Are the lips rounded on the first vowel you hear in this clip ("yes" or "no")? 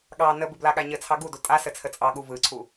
no